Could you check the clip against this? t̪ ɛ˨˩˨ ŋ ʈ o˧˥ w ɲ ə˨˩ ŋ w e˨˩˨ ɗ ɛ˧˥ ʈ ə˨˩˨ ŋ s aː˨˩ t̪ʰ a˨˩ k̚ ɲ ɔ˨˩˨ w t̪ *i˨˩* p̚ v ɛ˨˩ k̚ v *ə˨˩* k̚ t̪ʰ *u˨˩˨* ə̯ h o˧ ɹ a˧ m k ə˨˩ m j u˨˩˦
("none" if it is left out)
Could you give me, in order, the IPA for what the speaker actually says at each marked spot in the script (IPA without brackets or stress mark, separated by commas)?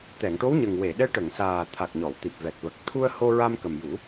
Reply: i˨˩, ə˨˩, u˧